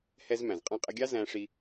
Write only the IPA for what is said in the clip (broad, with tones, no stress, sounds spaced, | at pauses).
h ɛ˧ z m æ̃˩ z qʼ ɑ̃˧ qʼ ə˧ ɡʲ ɑ˥ z æ̃˧ ʂ i˧